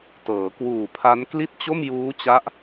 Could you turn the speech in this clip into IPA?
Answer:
t ɤː˩˦ k w uː˨˩ pʰ a˦˥ n k l i˥˩ t̚ t͡ɕ o˥˩ m j uː˦˥ t͡ɕ a˦˥ ʔ

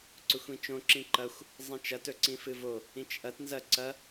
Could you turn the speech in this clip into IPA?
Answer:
ǀ ɵ xʷ ĩ t͡ʃ õ ǁ ĩ ǃ ɐ xʷ | zˤ ĩ t͡ʃ ɐ t ɵ ǀ ĩ f ɨ v o | ĩ t͡ʃ ʔ ɐ t n z ɐ ǀ ɐ

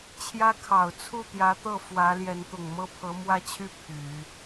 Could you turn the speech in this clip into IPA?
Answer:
t͡ɕʰ j ä˥ kʰ ɑ˨˩ ʊ̯ t͡sʰ u˥˩ t̪ j ä˧˥ t̪ ɤ˥˩ f w ä˧˥ l j ɛ˧˥ n t̪ ʊ˨˩ ŋ m ɤ˥ pʰ ɤ˧˥ m w ä˥ t͡ɕʰ y˥˩ pʰ y˨˩˦

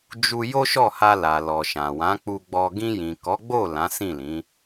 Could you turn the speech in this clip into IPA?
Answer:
d͡ʒ u˧ j o˦ ʃ ɔ˦˨ h a˧ l a˨ l ɔ˨ ʃ ã˨ w ã˨˦ k͡p u˧ ɡ͡b ɔ˧ ɡ ĩ˧ j ĩ˨ k ɔ˨˦ ɡ͡b o˦˨ l ã˨˦ s ĩ˦˨ l ĩ˨˦

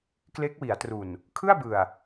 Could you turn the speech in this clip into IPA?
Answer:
k l e˦˥ k̚ w i˩˦ a̯ t r u˨˩ n | kʰ ɯ˥˩ a̯ b ɯ˨˩ a̯

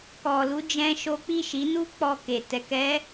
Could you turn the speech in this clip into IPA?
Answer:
k ɔ˧ l u˦ d͡ʒ ɛ̃˦ ʃ o˦ k͡p i˦˨ ʃ i˨˦ n u˦ k͡p ɔ˧ k e˨ t ɛ˧ k ɛ˦

